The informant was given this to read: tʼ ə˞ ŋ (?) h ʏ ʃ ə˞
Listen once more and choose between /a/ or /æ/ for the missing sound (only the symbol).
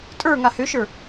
a